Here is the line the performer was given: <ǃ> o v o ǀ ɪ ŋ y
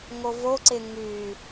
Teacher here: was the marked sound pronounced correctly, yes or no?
no